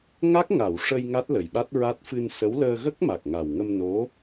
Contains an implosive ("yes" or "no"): yes